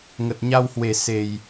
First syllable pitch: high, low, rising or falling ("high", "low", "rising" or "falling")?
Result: low